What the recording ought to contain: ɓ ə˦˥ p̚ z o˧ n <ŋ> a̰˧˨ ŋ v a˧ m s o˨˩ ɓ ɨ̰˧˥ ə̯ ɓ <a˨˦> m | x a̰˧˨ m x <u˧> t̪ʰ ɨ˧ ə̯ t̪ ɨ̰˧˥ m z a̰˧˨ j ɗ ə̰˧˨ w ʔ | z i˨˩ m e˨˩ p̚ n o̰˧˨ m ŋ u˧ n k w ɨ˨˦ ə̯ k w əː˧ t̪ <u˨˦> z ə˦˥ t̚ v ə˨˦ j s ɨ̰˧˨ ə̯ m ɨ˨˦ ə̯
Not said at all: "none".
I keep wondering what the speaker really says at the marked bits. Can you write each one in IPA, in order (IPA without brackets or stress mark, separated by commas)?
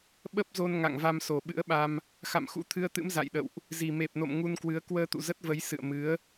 ŋ, a˧, ṵ˧˥, ṵ˧˨